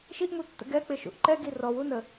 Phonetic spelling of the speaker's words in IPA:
ʃ i ʔ m u tː ə̰ ɡ ɛ k͡p ɪ ʃ ṵ ʔ ǃ ɛ ɡ i r ɔ w u n ə

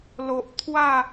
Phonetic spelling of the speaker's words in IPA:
l o˨ ʔ t̪ʰ w a˥˧

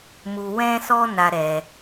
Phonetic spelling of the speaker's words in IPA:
m u˧ w ɛ̃˦ s ɔ˦ n a˦ ɾ ɛ˧

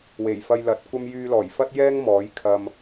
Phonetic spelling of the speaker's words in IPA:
w e˨˩ j f ɐ˧ j l ɐ˨˥ t̚ kʷ ɐ˥ m j yː˧ l ɔː˨˩ j f ɐ˥ t̚ j ɛː˥ ŋ m ɔː˨˥ j kʰ ɐ˧ m

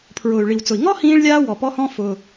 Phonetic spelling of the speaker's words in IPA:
pʰ ɹ ʊː˩ y̯ ɭ i˩ w t͡s ʊ˩ i̯ ŋ ɔ˥ h ĩː˧ ɭ lʲ aː˧ w ɔ˩ p ɔ˧ h ɔ̃˧ f ʊ˩

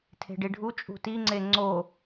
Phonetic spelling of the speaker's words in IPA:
tʰ e̤ ɖ i ɖʱ u t͡ʃʼ ṳ t i ŋ͡ǀ e ŋ͡ǀ o

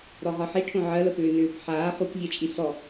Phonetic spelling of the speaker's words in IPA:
ɾ ɔ ʁ ɒ ħ i ʈʰ õ ʕ ɜ l ə p ʏː n ʏː p ħ aː χ u k vʲ ɜ t͡ʃʼ i s ɔ

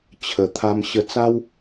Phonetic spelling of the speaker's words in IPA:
t͡ɕʰ ə˨˩ t̪ʰ a˧ m ɕ ə˧ t͡s a˦ w

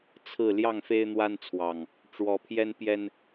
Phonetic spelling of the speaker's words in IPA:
t͡sʰ ɹ̩˥˨ l j ɑ˥˨ ŋ f e˦ ɪ̯ n̪ w a˦ n t͡sʰ w ɑ˨˩ ŋ | ʈ͡ʂ w ɔ˨˦ pʰ j ɛ˦ n p j ɛ˦ n

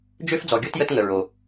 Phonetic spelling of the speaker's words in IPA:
d͡ʒ ø˦ f d͡z ɔ˨ ɡʲ o˦ t j ə˦ t ŋ ə˨ ɹ o˨

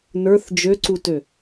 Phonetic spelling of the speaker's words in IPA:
n ə˞ θ d͡ʒ ø ǀ u t ø

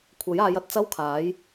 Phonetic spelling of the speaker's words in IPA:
kʷʰ ɐ˨˥ j aː˨˧ j ɐ˨ t̚ t͡s ɐ˥ w kʰ aː˨˥ j

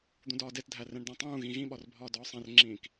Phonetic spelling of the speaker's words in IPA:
d̪ ũ d ɒː d e t dʱ æ r ẽ ɳ d æ̃ tˤ ũː ɣ ĩ ɣ ĩ ɓ ɒ r bʱ ɒː d ɒː sˤ ẽ r ŋ͡ǁ ĩː k

